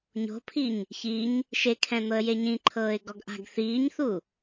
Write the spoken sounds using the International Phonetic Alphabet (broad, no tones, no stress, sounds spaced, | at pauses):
ɲ o̤ pʰ i ɲ | ç i ɲ | ʃ e kʰ ɛ̃ n̪ ɤ ə̯ j e ɲ ĩ ǃʰ ɤː ɪ̯ ɡ ɔ ɡ ʔ a̤ ɡ θ iː ɲ θ u